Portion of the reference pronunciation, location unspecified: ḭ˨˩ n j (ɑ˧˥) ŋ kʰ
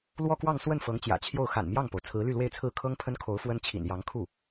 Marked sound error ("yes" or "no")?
no